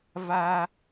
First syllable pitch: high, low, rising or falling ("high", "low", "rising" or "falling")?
high